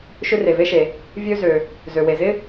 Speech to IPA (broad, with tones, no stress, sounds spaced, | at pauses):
ʃ ʏ˥ r e˩ v e˥ ʃ e˩ | vʲ ø˥ z ø˩ | z ø˩ w e˩ z ɪ˥